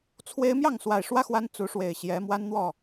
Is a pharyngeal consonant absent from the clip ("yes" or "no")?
yes